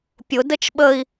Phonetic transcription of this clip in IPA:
pʲ ʊ d ə t͡ʃ ɓ ə i̯

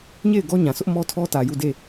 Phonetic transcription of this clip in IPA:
ɲ e˦˨ ɪ̯ ɡ ɔ˦ ɲ ã˨ s ʊ˦ ʔ m ɔ˦ tʰ ɔ˦ t ä˨ j u˦˨ d e˦˨

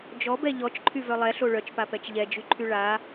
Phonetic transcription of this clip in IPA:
d͡ʒ ɔ b ɛ ʎ ɔ t͡ʃ ǃʰ y v œ lˠ ɛ ɬ o ɭ œ t͡ʃ p a p ɛ t͡ʃ ʎ ɛ d͡ʒ y ǃʰ y ɭ a

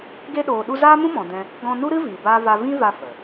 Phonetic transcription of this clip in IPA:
ɡ e˧ ɗ oː˨ ɗ u˧ z aː˦ m ũ˦ m ɔ̃˨ d ɛ̃˧ | ɡ ɔ̃˧ n u˦ ɾ ɨ˦ v iː˨ b aː˦ v a˧ v ĩ˦ v a˧ f ə˨

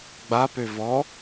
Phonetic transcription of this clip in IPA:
ɡ͡b a p ø v ɔ

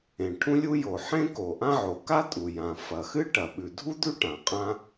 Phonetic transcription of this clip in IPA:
ẽ˩ ʈʰ ũ˥ lʲ u˥ j o˩ ħ ẽ˥ k o˩ ʔ ã˥ ʕ o˩ k a˥ tʼ u˩ j ã˩ f ɐ˩ x ɨ˥ ʈ ɐ˩ ɓ ʉ˩ dʱ u˥ d̪ ʉ˥ ʈ ã˩ qʼ ã˥

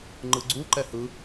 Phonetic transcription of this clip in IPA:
ŋ͡ǃ ɯ ɡ͡ǀ u ǃ ɛ h ɯ

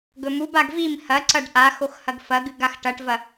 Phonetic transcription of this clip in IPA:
ɡ ɵ m u b a ɡ v i m h ɐ ǀ ɐ ɖ ʔ a x o x h ɐ ɡ f ɐ ɡ ɨ ɡ a x ʈ ɐ ʈ v ɐ

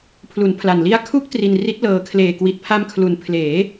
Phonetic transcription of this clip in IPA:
pʰ l u˩˦ n pʰ l a˨˩ n l i˦˥ a̯ kʰ u˦˥ k̚ t r i˧ n r i˦˥ t̚ l ɤː˧ kʰ l eː˨˩ k w i˨˩ t̚ pʰ a˧ m kʰ l u˨˩ n pʰ l eː˩˦

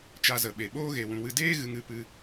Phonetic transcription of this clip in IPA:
t͡ʃ a˧ z ə˨ ɓ e˨ ɓ oː˦ ɣ e˨ w ũ˨ w ɨ˧ d eː˦ ɣ ɨ˧ ŋ ɨ˨˦ p ɨ˧

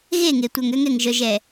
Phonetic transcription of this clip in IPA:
ɣ e˦˨ ŋ e˨ tʷ œ˨ ŋ ø˦ ŋ ɛ˨ ŋ ʒ œ˨ ʒ ɛ˨

